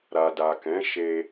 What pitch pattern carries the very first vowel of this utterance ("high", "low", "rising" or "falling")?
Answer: low